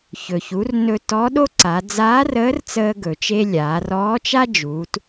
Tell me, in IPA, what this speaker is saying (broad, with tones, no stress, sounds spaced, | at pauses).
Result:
ç ɵ˩ ç u˩˧ r n ɵ˧ t ɔ˧˥ ɗ o˥ ǀ a˩˧ d͡z aː˧˥ r əː˧˥ r t͡s əː˧ ɡ ɵ˩ t͡ʃ e˧ lʲ aː˩˧ r ɔː˧˥ t͡ʃ a˥ d͡ʒ uː˩˧ t